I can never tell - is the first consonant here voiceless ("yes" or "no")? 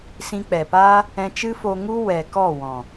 yes